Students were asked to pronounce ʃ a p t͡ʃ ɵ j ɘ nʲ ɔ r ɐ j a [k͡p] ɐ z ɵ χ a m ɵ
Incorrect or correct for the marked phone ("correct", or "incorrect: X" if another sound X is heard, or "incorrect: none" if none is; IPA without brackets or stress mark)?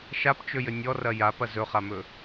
incorrect: p